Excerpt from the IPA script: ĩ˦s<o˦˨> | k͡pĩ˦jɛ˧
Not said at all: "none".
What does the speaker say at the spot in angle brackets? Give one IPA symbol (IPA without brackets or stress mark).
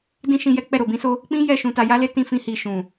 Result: o˦